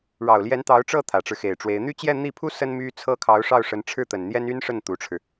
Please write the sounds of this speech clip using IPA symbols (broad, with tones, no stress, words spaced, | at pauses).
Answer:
ɻɑ˨˩ʊ̯ljɛ˧˥n t̪ɑ˧˥ʊ̯ʈ͡ʂɤ˥˩ t̪ʰä˨˩ʈ͡ʂɻ̩˦xe˨˩ɪ̯ʈ͡ʂwe˧˥ɪ̯ n̪y˥˧t͡ɕjɛ˥˧n̪i˥˩pʰu˥ sə˥nmy˥ t͡sʰɤ˥˩kʰɑ˧˥ʊ̯ʂɑ˥˩ʊ̯ ʂə˧˥nʈ͡ʂʰɻ̩˥˩t̪ə˨˩nn̪jɛ˥n y˥nʂə˥˩n t̪u˧˥ʈ͡ʂʰɻ̩˧